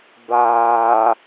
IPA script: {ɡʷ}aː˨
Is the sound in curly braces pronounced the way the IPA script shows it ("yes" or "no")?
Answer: no